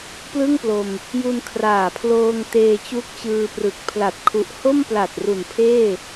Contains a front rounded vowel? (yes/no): no